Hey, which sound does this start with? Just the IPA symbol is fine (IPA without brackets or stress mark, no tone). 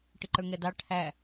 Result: ʈ